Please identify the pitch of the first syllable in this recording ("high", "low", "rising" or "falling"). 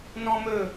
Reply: high